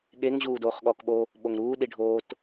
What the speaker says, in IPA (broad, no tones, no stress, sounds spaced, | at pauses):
ɠ e ŋ ʑ uː d oː χ ɠ ɔː k ɓ o | ɓ o ŋ ɾ uː ɗ i ɖʱ oː t